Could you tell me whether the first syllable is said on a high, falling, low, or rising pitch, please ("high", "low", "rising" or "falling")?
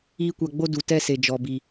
high